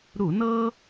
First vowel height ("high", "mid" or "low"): high